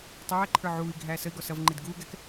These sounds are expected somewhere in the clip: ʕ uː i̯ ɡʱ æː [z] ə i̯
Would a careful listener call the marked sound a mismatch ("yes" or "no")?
yes